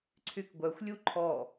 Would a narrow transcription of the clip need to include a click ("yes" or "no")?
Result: yes